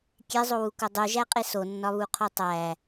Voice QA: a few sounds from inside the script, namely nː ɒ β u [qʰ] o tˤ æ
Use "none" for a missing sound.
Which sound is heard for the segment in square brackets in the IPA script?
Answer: qʰ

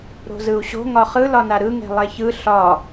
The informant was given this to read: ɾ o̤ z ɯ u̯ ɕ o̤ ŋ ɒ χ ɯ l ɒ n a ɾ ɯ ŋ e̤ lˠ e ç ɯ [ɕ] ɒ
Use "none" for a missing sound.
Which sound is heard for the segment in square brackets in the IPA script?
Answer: ɬ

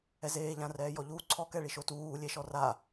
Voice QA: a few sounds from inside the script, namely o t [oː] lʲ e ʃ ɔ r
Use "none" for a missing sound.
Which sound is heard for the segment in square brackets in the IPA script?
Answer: uː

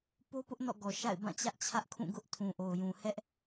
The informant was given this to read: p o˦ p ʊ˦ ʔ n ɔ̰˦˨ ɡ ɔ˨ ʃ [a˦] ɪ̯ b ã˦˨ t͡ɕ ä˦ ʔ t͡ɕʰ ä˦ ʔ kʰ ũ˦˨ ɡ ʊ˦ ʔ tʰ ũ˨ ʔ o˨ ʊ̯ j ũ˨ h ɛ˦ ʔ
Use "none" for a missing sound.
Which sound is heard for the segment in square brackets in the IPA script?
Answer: a̰˦˨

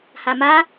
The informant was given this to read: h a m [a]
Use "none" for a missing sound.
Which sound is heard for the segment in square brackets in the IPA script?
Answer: a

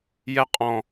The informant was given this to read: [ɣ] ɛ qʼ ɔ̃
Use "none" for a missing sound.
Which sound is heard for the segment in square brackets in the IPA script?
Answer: j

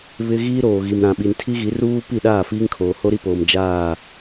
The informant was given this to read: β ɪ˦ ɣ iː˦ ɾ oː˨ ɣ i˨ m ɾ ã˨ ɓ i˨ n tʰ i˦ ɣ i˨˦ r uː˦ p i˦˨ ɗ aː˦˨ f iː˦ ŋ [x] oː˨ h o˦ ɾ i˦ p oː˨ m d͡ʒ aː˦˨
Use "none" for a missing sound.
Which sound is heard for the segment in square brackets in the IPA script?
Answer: kʰ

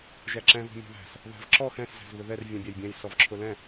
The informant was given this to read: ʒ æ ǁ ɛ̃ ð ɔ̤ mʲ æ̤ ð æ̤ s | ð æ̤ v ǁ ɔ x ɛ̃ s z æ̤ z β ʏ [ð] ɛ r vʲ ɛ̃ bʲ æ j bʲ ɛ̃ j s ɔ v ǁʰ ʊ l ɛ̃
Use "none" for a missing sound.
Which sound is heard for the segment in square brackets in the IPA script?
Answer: ð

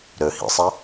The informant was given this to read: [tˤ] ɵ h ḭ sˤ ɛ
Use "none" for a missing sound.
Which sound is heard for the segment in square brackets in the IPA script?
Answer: ɾ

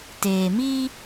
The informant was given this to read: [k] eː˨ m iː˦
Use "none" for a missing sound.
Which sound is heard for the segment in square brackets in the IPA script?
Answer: t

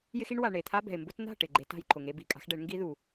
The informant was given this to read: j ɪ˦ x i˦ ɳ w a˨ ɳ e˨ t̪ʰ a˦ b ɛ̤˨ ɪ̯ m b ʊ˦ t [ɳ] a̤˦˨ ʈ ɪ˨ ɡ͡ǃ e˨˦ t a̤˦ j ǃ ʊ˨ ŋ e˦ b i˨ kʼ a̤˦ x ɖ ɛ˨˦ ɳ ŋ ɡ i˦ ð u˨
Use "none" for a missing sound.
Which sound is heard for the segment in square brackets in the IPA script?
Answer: n̪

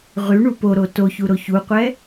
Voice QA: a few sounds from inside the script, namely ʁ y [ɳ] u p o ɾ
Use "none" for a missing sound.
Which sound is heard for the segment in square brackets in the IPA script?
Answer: ɳ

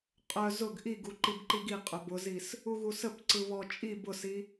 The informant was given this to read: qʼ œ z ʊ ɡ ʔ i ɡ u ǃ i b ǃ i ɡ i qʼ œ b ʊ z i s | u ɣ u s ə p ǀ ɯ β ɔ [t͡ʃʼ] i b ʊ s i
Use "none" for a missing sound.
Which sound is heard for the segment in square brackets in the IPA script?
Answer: t͡ʃʼ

